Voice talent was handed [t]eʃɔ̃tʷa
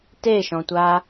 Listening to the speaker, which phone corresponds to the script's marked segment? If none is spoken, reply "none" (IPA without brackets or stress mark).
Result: t